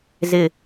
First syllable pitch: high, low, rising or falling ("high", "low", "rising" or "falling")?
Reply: low